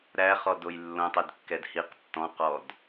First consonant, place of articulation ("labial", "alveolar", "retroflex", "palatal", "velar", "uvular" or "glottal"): alveolar